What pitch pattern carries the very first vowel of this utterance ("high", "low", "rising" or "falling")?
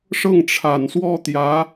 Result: falling